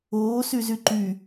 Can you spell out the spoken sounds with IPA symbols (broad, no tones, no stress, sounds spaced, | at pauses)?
oː s y z y ǃ y